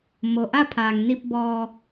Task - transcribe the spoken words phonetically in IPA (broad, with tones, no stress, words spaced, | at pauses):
mo˩ʔa˥˨pʰaː˩ŋni˧p̚ bɔː˧